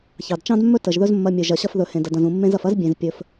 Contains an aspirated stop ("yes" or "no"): no